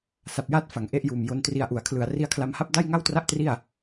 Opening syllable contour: low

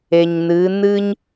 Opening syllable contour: low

